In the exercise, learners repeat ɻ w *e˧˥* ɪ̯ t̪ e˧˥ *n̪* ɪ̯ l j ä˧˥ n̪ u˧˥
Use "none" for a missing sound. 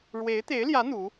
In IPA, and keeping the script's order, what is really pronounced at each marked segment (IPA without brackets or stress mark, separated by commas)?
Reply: e˧˥, none